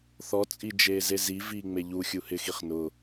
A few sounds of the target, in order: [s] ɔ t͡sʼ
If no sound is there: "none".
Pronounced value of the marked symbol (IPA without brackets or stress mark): θ